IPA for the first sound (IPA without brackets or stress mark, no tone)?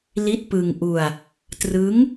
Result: l